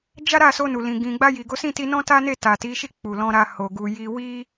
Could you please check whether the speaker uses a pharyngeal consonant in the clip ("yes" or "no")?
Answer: no